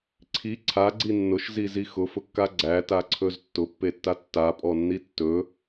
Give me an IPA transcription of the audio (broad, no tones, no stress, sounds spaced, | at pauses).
ǀʰ i ǀʰ a ɡ͡ǀ i nː ʊ ʃ z i z i x ʊ f ʊ kː a ɡ͡ǀ æ t a ǀʰ ɵ z tː ʊ pː e tː a tː a pʼ ɔ nː i tː ɵ